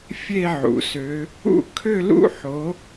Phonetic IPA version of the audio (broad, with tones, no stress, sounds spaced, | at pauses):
fʲ e˥˧ ʕ ṵ˩ s ø˨˦ | ṵ˥˧ kʰ ø˥˧ l ṵ˥˧ ħ o˨˦